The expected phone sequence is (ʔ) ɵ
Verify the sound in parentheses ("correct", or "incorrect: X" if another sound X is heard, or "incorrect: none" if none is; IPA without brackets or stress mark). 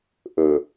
correct